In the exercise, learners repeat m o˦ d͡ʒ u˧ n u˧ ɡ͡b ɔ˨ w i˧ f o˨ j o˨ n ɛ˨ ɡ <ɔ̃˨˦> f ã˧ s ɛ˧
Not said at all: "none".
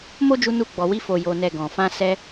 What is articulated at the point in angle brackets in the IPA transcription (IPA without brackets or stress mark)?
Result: ɔ̃˨